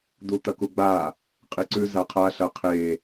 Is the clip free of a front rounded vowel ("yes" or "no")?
yes